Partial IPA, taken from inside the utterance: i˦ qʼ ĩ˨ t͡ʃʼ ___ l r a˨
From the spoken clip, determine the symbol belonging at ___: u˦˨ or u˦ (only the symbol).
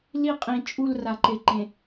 u˦˨